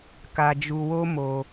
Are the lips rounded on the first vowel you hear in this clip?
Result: no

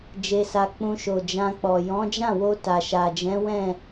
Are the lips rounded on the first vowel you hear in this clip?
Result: no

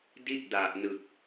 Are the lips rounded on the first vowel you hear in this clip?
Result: no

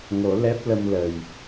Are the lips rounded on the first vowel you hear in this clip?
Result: yes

